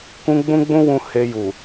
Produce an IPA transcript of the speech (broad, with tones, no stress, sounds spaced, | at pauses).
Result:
k ũ˦ ɡ͡b ũ˦ ɡ͡b ũ˦ w ũ˧ h e˧ j u˨